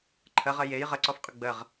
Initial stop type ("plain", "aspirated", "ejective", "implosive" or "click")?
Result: click